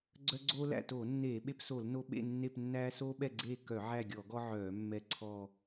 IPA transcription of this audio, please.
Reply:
ɡ͡ǀ œ˦ ɡ͡ǀ oː˦ l æ̰˦˨ t oː˧˩˧ nː eː˧˩˧ ɓ e˦ p s o˧˩˧ l n o˦ ɓ ḛ˦˨ nː e˦˨ p nː æː˦ s oː˦ ɓ ɛ˦˨ ɡ͡ǀ eː˦˨ k œ˧˩˧ ʕ æ˦˨ ɡʲ ɔ˧˩˧ ɡ ɔ˦ ʕ œː˧˩˧ mː ɛ˦˨ ǀʰ ɔ˦˨

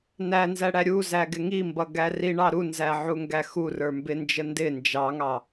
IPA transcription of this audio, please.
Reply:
n æ n z æ ɽ æ ɾʲ u z æ ɡ ɪ ŋ i m b ʌ ɡ æ r i ɳ ɑ ɾ u n z æ ʕ u ŋ ɡ æ x u r ə˞ m b ɪ n d͡ʒ ə n d ɪ n d͡ʒ ɑ ŋ ɑ

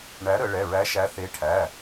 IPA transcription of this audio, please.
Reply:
ɳ æ˨˥ ɾ ə˩˧ ɭ ɛ˩˧˩ ɹ æ˨˥ ʃ æ˨˥ θ e˨˥ ʈʰ æ˩˧˩

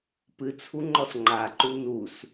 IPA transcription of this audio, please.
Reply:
p ɨ t͡sʰ u ŋ͡ǃ ɔ s ŋ͡ǃ a ǃ u n u s

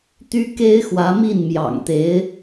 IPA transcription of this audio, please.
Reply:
t̪ y˥ k e˥ ɪ̯ x w ä˧˥ m i˥˩ n m j ɑ̰˨˩ ŋ t̪ e˧˥ ɪ̯

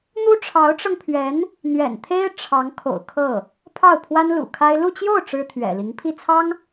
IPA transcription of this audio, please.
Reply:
n̪ u˥ ʈ͡ʂʰ ɑ˧˥ ʊ̯ ʈ͡ʂ ɤ˧ ŋ pʰ ɥ ɛ˧˥ n | n̪ ɥ ɛ̰˨˩ n t̪ʰ e˥ ɪ̯ ʈ͡ʂʰ ɑ˧˥ ŋ kʰ o̰˨˩ ʊ̯ kʰ ɤ˥˩ | pʰ ɑ˥˩ ʊ̯ pʰ w a˥ n l ṵ˨˩ kʰ a˥ ɪ̯ l u˥˧ t͡ɕ j o˥˩ ʊ̯ ʈ͡ʂ ɻ̩˥ t̪ʰ ɥ ɛ̰˨˩ l i˧˥ ŋ pʰ i˥˩ t͡sʰ ɑ˥ ŋ

